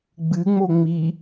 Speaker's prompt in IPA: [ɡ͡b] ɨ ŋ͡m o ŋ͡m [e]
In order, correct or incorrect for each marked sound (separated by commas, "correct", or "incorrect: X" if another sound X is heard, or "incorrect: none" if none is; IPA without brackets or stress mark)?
correct, incorrect: i